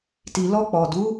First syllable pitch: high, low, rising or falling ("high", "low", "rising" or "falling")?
low